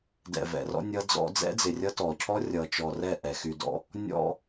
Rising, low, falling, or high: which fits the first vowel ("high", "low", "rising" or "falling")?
low